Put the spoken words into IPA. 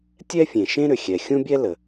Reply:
tʲ ɛ˥ fʲ ẽ˩ ʃ ẽ˥ ɾ ʏ˩ xʲ ɛ˩ xʲ ũ˥ bʲ ɛ˥ l ə˩

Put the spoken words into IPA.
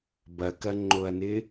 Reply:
b ɐ k ɐ ŋ͡ǃ o ɐ̯ n ɪ

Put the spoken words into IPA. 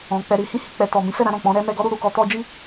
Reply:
ɔ̃˨ k͡p ɛ˧ ɾ i˧ h ĩ˧ h i˨ k͡p ɛ˨ t ɔ˨ m ĩ˨˦ f ɛ˦˨ ɾ ã˧ ɾ ɔ̃˨ k͡p ɔ̃˨˦ ɾ ɛ˦ m ɛ˧ ɡ ɔ˦ ɾ u˧ ɾ u˨ k ɔ˧ t ɔ˦ d͡ʒ i˦

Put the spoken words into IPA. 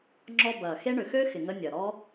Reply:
ŋ͡ǁ ɔ˧ b ɐː˨ x e˦ ɳ ʏ˨ x ø˦ x ɪ˨ ŋ ə˧ nʲ ɐ˨ ɾ ɔ˦

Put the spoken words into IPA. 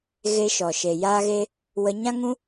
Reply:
ɣ e˧ ʃ ɔ˨ ʃ e˨ j aː˧ ɣ e˧ | w ə˧ ɲ ã˦ ŋ ũ˦

